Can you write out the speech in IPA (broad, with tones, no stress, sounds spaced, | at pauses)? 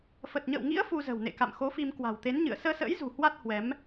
f ə˨˩ t̚ ɲ ə̰ː˧˨ w ŋ ḭ˧˥ ə̯ f u˧ z ə̤˨˩ w n ḛ˧˨ k a̰˧˨ m x o˨˦ f i˧ m k w a̤˨˩ w t̪ e˨˦ n ɲ ɨ̰˧˨ ə̯ s əː˧ s ə̰ː˧˥ j z ṳ˨˩ h w a˦˥ t̚ h w ɛ˨˦ m